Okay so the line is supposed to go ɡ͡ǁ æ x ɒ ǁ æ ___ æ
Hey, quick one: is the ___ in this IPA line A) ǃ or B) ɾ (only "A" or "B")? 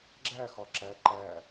A